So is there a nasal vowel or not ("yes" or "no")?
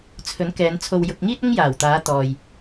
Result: no